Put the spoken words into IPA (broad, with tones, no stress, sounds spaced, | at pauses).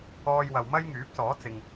ɔː˥ j w ɐ˧ w m ɐ˥ j ŋ yː˨˥ p̚ s ɔː˨˥ t͡s ɪ˨ ŋ